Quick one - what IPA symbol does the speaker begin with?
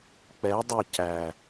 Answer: k͡p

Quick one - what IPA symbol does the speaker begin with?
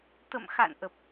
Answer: t̪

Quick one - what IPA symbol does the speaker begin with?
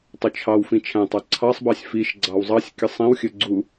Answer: tˤ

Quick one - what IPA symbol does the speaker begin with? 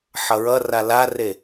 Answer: ħ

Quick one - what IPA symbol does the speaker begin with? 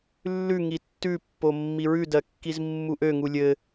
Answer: lː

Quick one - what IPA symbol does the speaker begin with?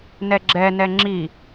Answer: n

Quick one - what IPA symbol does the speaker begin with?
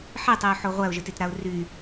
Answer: ħ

